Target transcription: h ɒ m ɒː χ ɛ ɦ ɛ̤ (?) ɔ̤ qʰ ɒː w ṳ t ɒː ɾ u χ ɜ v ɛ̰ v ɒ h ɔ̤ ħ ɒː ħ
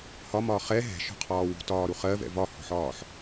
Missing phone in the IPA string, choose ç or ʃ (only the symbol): ʃ